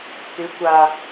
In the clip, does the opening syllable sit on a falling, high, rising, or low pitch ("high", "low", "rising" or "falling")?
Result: rising